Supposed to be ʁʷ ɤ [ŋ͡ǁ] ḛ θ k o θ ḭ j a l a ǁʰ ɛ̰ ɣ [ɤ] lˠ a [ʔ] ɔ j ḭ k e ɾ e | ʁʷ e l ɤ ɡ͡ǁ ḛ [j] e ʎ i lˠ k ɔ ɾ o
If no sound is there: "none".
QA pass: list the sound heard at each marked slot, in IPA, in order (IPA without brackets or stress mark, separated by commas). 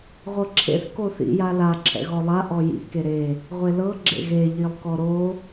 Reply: ǁʰ, ɔ, ʔ, ɣ